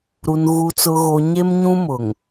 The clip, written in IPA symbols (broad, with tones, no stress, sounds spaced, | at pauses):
ɾ u˨ n ɣ u˨ t͡s ʊ˨ ɣ o˨ ɲ e˦ m ɲ ũ˦ m ʊ˨ ŋ